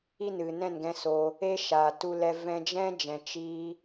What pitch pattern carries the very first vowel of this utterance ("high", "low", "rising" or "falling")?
high